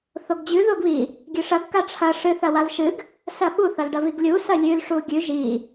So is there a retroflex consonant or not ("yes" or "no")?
yes